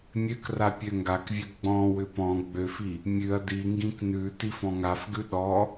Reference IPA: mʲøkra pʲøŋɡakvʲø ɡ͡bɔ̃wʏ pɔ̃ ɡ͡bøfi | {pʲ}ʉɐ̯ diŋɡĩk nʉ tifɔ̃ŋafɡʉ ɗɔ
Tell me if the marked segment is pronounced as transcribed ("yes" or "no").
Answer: no